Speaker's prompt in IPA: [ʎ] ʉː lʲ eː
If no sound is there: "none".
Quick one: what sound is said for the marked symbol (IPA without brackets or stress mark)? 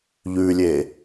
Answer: ʎ